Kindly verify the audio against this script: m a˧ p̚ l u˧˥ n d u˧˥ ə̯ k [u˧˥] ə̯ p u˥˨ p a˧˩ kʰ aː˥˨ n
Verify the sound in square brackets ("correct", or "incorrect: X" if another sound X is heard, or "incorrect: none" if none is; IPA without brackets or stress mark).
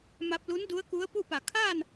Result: correct